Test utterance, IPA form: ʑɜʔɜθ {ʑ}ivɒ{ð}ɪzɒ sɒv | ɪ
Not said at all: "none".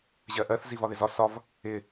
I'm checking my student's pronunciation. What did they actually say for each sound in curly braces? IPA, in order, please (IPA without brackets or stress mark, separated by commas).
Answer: z, ð